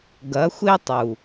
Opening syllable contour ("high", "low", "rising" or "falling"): rising